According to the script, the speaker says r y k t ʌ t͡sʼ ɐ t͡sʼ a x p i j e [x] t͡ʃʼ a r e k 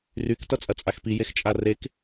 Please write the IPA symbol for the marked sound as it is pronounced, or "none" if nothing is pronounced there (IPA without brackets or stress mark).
x